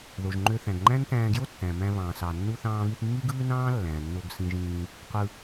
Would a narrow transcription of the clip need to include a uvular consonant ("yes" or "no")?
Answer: yes